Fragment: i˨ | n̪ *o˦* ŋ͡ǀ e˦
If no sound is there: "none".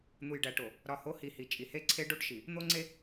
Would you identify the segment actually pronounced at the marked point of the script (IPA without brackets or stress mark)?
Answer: o˦